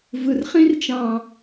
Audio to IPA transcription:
v ɯ˨ r χ ĩ˦ r t͡ʃ ɑ̃˨

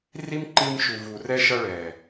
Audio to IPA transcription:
r i˦ m ǃ i˧ m ʃ u˨ v u˨ r ɛ˧ ʃ ʌ˧ ɭ ɛ˨

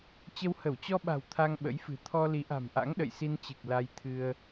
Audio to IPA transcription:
t͡ɕ ə˧ w h ə˧˩ w t͡ɕ ɔ˧ ɓ a̤˨˩ w t̪ʰ a˧ ŋ ɓ ə̰˧˥ j f ɨ̤˨˩ t̪ʰ ɔ˧ l i˨˦ ʔ a̤˨˩ m ʔ a̰˧˥ ŋ ɗ ə̰˧˨ j s i˧ n t͡ɕ ɨ˨˩ k̚ l a˧ j t̪ʰ ɨ˧ ə̯

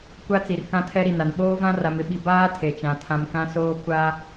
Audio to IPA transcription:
kʷ a˦ t͡s i˨ r k ã˦ tʰ ɛ˦ ɾ i˨ n a˨ n ɓ oː˦ v ã˦ r a˨ m ɪ˦ ɓ i˨ b aː˦ tʰ e˨ t͡ʃ ã˨ tʰ ã˨ m k ã˦ s oː˦ kʷ a˦

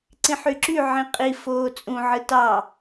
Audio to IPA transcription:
ǀ ĩ ħ y ǁ y ʕ ĩ qʼ i f oː t͡sʼ ũ ʕ ɯ t ɑ

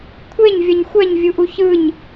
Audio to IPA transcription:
kʷʰ e ɲ vʲ ʌ ɲ xʷ ɛ ɲ vʲ u ʔ u ç ɯ ɲ

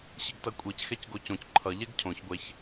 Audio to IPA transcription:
ɕ i ɡ t ʌ kʷʼ i c x ɛ c ɡ o c õ c ǃʰ ʌ ʎ ɛ ɡ cʰ õ ç ɡʷ ɛ ç

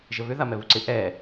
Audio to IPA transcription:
ʒ ə β ʏ ð a m ɛ β u ǀ ɪ ʔ ɛ

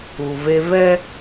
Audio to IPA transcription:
u˨ v e˦ v ɛ˦

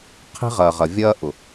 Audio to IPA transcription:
qʰ i̤˦ ʁ ɐː˨ ʁ ɐ˨ vʲ ɐː˦ ʔ ʊ˨

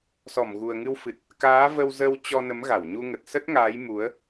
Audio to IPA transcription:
s ɔ˧˩ m ɣ u˨˩ ə̯ ŋ ɨ˧ w f ɨ˨˩ t̚ | k aː˨˦ v ə˧ w z ə˧ w t͡ɕ ɔ˧ n ə˨˦ m ɣ a˧˩ w ɲ u˧ ŋ ə˨˩ t̚ s ə˦˥ t̚ ŋ aː˨˦ j m u˨˦ ə̯

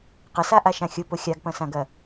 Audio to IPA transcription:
q ə s a ʔ a ʃ ã xʲ ʊ p ʊ xʲ a ɡ p ɐ̃ s ã ɡ ɐ

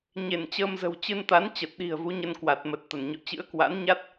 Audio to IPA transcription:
ɲ e˧˩ n t͡ɕ əː˧ m z ə̤˨˩ w t͡ɕ ɨ˧ n t̪ a˨˦ n t͡ɕ ə˨˩ t̚ ɗ i̤˨˩ ə̯ v u˨˦ ɲ ə˧ n k w a˨˩ t̚ m ə˨˩ t̚ t̪ ə˧˩ n ɲ ɔ̰˧˨ t͡ɕ ɨ̰˧˥ ə̯ k w a̰˧˥ n ɲ a˦˥ t̚

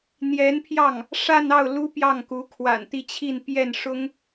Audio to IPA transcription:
n̪ j ɛ˧˥ n pʰ j ɑ˥˩ ŋ | ʂ a˥˧ n ɑ˥˩ ʊ̯ l u˥ p j ɑ˥˩ ŋ k u˧˥ kʰ w a̰˨˩ n t̪ i˥˧ t͡ɕʰ i˥˧ n p j ɛ˥˩ n ʂ ʊ˥ ŋ

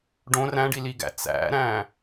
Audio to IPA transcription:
ɖ õ r æ̃ ɖ i l i ɡ æ̰ t͡s æ̰ ɾ æ̃

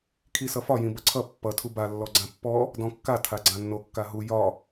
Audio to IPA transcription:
kʰ i s ʌ f ɒ j ĩ b ʌ ǀʰ ʌ pː ʌ tʰ u b a lː ɔ ɡ͡ǀ ã pː ɔ | d ɔ̃ kː a tʰ a ɡ͡ǀ ã nː o kː a ɦ u j ɒ

